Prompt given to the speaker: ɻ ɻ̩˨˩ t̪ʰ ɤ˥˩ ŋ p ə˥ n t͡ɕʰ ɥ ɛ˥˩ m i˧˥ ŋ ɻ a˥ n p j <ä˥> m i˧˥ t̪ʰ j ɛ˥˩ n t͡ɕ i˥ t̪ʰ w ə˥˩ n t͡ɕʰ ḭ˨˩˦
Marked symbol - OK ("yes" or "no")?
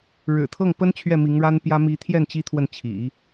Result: yes